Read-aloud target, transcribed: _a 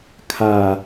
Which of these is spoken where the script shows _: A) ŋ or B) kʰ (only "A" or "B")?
B